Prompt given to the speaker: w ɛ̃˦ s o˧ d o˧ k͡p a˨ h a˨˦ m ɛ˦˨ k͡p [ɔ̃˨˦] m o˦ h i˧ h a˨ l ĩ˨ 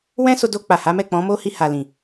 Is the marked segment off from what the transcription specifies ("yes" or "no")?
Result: no